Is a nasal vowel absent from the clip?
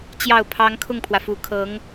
yes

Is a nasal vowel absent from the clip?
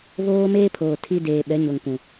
no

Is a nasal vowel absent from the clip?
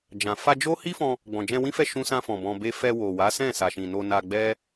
no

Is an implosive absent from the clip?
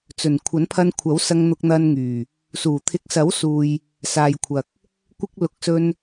yes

